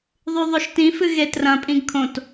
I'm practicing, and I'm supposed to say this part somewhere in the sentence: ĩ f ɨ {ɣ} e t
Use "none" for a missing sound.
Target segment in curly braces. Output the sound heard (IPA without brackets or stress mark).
ɣ